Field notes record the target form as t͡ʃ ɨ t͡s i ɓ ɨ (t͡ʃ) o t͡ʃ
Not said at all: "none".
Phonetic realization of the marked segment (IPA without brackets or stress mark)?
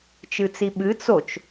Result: t͡s